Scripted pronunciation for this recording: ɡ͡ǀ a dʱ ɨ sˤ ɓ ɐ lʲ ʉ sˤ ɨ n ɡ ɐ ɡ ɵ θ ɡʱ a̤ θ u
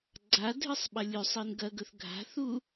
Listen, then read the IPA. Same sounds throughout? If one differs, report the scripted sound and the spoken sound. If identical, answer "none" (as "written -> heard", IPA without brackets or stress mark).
none